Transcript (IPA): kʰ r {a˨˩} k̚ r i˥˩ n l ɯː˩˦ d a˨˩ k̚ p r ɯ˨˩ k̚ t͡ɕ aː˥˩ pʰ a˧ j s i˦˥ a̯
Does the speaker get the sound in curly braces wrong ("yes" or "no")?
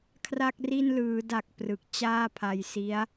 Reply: yes